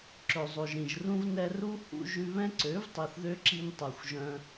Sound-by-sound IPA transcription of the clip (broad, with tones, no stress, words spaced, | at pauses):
ǁɵ˨zˤo˨ʒɾĩ˨ʒrũ˦v nɛ˧ru˦ hṵ˦ ʒʉ˧βɛ̃˦ǀø˨˦v tˤi˨θðø˦ǁi˧n tˤu˨xʷʒœ̃˧